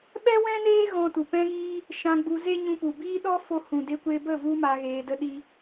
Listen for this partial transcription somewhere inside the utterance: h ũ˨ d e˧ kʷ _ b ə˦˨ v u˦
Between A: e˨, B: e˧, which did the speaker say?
B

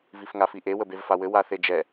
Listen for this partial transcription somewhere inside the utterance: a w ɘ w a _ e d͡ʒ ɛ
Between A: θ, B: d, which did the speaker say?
A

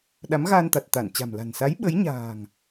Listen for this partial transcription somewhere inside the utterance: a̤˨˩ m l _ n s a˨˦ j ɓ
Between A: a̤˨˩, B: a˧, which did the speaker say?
A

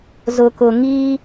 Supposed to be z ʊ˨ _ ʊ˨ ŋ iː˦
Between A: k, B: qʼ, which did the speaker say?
A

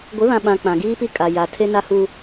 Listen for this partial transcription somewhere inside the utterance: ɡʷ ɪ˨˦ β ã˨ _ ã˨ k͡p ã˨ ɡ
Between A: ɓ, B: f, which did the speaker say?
A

